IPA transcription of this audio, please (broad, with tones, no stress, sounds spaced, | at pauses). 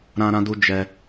ɾ ã˦ ɾ ã˦ d u˦ d͡ʒ ɛ˦